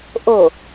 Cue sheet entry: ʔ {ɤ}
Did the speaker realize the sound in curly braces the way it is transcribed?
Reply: no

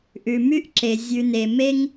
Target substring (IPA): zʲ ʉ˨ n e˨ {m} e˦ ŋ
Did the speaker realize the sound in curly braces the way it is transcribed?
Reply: yes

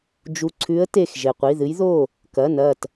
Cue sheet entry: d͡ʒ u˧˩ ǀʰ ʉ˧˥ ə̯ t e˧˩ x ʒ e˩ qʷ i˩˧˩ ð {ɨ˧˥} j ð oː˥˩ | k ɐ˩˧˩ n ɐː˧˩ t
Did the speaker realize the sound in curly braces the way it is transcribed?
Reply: yes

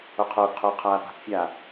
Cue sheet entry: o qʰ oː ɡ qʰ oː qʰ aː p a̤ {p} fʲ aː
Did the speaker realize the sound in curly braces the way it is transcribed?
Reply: yes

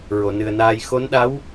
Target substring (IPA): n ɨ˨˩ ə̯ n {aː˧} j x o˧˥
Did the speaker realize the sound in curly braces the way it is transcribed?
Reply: yes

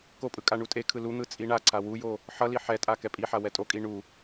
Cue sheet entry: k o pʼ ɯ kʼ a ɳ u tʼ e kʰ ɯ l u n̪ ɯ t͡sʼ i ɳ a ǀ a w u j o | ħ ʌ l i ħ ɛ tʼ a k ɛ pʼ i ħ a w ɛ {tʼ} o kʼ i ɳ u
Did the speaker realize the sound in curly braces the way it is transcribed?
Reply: yes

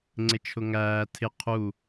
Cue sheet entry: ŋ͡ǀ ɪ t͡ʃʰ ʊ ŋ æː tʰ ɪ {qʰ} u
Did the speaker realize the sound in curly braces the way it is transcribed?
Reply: yes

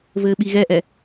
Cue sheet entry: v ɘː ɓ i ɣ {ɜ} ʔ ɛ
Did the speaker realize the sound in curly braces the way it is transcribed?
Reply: no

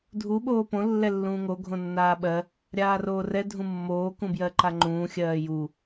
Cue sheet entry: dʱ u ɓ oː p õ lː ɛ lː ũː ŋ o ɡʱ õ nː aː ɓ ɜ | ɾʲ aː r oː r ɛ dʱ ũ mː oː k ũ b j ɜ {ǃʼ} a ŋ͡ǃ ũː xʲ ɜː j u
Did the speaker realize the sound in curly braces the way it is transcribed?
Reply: no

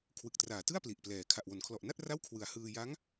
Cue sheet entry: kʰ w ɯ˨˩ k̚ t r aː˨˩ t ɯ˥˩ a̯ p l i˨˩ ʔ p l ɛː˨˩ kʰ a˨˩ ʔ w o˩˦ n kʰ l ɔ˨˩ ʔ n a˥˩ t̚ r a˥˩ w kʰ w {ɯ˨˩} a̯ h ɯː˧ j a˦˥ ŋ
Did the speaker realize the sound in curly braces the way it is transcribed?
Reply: yes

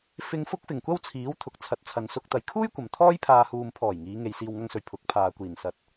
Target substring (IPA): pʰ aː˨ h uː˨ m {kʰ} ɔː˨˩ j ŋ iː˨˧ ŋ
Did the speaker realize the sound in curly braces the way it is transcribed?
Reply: no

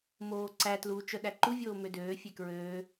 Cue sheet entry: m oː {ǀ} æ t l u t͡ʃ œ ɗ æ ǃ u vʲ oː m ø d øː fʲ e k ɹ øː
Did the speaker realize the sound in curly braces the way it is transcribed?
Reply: yes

